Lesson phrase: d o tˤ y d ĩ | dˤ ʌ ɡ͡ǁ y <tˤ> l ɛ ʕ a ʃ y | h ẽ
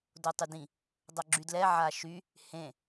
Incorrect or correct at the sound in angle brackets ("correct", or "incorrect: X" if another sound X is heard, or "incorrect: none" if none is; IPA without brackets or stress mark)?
incorrect: d